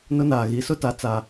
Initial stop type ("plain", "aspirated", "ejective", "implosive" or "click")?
plain